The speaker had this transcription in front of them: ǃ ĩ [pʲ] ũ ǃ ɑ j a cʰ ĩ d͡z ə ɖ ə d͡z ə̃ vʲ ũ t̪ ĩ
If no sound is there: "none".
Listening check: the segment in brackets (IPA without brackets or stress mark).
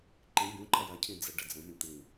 bʲ